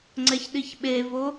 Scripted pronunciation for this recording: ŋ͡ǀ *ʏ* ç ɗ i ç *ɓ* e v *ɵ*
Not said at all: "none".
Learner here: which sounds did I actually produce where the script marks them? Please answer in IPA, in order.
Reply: ɛ, ɓ, o

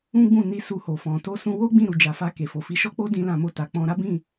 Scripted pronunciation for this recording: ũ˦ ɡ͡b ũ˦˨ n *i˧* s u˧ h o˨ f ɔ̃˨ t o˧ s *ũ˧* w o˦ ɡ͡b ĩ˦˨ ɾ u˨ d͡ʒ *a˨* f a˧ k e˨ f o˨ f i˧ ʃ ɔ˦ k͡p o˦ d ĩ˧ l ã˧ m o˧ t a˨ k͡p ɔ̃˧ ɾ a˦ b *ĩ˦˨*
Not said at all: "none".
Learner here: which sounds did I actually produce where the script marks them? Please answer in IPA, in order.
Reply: i˧, ũ˧, a˨, ĩ˦˨

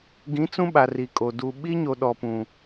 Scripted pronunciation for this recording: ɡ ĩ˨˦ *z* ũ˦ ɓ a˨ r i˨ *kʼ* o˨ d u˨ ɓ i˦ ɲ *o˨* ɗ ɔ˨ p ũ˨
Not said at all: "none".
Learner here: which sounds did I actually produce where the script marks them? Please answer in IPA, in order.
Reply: t͡s, kʼ, o˨

